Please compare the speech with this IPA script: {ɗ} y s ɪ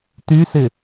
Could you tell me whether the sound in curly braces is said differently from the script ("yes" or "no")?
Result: yes